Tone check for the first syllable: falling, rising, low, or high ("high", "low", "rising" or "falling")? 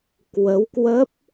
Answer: rising